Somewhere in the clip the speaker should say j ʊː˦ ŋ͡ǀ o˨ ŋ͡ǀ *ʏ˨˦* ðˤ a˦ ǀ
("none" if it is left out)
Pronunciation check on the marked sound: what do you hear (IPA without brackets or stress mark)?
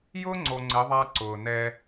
ɪ˨˦